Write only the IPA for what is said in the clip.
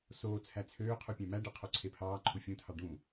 soːt͡sʰæ t͡sʰøː qʰupʲæ̃mæɖɯ qʰoǀʰepʰɑːǃʰu fʲũtʰɑ ɖũ

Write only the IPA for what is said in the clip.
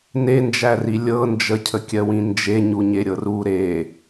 nend͡ʒæri lʲɤ nd͡ʒəcʰəkʲɜwĩ nd͡ʒeɲuɲeɾʲɤr u ɾe

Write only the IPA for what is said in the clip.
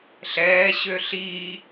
ɬɛː ɕøɬiː

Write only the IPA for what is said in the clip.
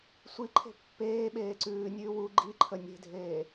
sʷiǃʰe̤ pːeː ɓeːǀʉː nʲʉːwu ɡ͡ǃiǃʰə nʲe̤dʱeː

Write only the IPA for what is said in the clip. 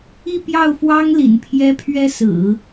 i˥˧pjɑ˥˩ʊ̯fwɑ˥ŋ lḭ˨˩npʰjɛ˥ pʰɥɛ˥sɹ̩˨˩˦

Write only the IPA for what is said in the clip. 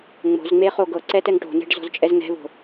ŋ͡mo̤zŋ͡me χoɡɤǀɛ tɛŋʈo̤nɛ̤ɖ zɔ̤zt͡ʃʼɛzŋɛ̤vo̤

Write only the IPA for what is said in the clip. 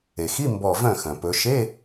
e˩xi˧˥˧ mbɔ˧˩ vœ̃˥˩xœ̃˩ pɵ˩˧ ʃe˧˥˧

